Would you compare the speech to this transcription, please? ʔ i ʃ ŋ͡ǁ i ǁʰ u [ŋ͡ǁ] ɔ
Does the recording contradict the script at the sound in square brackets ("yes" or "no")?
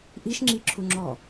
no